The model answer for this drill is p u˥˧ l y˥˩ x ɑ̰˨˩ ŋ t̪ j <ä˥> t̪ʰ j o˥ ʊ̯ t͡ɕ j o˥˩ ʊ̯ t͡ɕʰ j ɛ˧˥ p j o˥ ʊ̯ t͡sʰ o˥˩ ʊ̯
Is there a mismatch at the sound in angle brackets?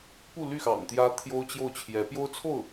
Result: no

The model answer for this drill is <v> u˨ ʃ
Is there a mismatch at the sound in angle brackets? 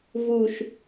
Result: no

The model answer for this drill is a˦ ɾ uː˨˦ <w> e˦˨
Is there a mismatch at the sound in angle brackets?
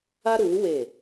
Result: no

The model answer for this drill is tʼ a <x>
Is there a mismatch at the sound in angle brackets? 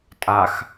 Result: no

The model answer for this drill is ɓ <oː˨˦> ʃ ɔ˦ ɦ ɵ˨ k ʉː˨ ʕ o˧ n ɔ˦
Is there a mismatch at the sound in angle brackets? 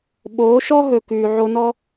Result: no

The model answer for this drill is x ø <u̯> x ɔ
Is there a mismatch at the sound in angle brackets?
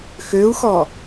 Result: no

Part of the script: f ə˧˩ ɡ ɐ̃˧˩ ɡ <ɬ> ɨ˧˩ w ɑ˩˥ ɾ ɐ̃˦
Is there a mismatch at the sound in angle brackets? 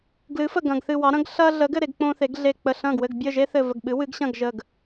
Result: yes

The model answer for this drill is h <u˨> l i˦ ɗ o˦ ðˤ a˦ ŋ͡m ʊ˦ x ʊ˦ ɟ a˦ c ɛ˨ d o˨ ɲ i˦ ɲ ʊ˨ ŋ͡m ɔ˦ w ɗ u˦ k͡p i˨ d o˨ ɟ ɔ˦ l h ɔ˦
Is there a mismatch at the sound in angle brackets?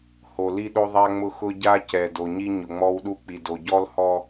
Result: yes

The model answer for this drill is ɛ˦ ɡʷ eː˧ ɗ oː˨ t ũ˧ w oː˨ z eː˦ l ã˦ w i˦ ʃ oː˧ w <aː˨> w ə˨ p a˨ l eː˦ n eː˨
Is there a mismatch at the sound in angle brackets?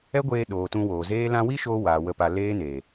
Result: no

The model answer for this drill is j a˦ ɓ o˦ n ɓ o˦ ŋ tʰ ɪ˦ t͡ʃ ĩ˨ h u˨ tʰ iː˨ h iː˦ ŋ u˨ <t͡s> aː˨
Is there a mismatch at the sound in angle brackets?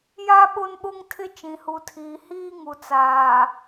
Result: no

